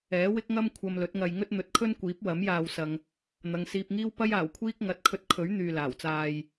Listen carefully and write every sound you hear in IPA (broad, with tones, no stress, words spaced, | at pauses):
ɛː˨˥wɪ˥k̚ŋɐ˥m kʷʰɐ˧mlɵ˨˥t̚ŋɐ˧j ŋɵ˥t̚n̪ɵ˨˥t̚kʰɵ˥n kʷiː˨˥p̚wɐ˨˥m jaː˧wsɐ˧ŋ | n̪ɐ˨ŋsiː˧p̚ŋiː˥w pɐ˥jaː˨˩wkʷʰiː˥k̚ ŋɐ˨˥t̚kʰɵ˧t̚kʰɵ˨˥ɥ n̪yː˨laː˨˩wt͡saː˧j